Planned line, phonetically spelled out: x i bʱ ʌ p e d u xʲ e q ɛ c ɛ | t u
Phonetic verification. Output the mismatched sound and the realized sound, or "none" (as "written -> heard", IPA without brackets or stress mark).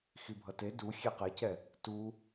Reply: p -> t